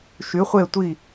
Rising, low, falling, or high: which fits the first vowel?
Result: rising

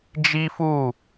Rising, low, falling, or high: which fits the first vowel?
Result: high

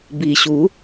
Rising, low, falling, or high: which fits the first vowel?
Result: low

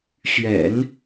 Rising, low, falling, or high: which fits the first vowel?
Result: low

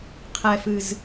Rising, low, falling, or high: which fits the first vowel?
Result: low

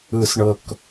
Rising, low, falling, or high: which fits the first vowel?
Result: low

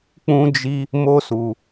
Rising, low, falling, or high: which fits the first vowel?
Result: high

